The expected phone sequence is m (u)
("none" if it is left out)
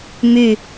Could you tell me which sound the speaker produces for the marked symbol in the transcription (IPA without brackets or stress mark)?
y